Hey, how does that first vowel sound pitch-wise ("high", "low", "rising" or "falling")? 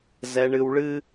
low